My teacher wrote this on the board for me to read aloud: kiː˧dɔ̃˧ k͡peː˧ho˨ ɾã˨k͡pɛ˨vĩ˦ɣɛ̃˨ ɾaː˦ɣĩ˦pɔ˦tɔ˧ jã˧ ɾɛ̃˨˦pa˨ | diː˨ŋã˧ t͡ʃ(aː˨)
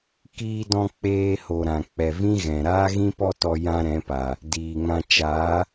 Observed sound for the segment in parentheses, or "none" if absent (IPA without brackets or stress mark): aː˨˦